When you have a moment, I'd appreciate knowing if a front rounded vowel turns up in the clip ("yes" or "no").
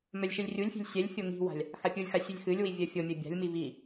yes